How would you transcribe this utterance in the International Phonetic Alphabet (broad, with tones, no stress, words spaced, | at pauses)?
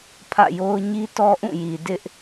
pʰä̰˦˨jo˦ʊ̯ ɲi˦tɔ˦ʔũ˦˨ji˨ dɪ˦ʔ